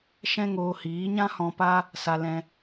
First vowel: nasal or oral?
nasal